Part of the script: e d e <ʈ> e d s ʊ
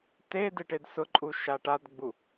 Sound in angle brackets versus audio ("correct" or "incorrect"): correct